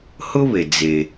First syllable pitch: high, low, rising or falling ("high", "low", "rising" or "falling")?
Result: high